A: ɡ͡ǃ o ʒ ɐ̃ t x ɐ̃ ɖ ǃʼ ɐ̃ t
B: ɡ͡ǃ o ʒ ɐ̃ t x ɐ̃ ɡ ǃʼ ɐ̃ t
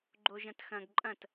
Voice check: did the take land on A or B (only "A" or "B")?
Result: B